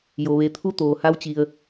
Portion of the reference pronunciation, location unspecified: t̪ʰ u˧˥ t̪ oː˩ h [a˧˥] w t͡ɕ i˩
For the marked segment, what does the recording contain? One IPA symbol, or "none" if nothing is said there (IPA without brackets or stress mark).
a˧˥